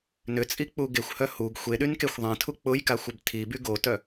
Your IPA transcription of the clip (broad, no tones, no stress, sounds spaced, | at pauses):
n ʏ t͡sʼ i k͡p u ɡ e xʷ h œ h u ɡ xʷ e ɗ y n k e xʷ ðˤ ẽ tʰ u k͡p ʊ j k a xʷ ʏ b tʰ i b y ɡ o t œ